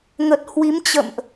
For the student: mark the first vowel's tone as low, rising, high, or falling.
low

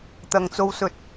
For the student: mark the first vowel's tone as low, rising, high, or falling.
low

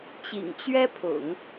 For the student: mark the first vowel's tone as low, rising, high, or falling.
low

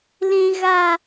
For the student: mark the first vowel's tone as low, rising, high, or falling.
high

